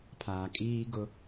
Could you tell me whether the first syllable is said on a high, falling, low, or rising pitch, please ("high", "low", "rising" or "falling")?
low